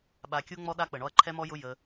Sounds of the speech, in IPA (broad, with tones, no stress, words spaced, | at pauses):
ɓa˧kʲu˦ŋ͡mɔ˦ɗa˦ k͡pə˨ɳɔ˧ɐ̯ ǃʰɛ˦mɔ˦jʊ˦ jə˧